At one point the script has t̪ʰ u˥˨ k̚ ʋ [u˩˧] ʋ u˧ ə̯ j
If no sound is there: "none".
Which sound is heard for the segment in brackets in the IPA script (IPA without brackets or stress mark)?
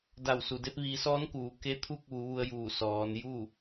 u˩˧